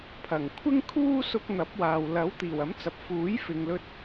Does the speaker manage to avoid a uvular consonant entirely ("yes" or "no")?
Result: yes